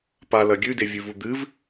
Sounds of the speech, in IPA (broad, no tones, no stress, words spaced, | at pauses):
palɐ ɡʲʉdevʲʉvu d̪ɨv